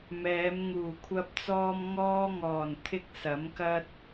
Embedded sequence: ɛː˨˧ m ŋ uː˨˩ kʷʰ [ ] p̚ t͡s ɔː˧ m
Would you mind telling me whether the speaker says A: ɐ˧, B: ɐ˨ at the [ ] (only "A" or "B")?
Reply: A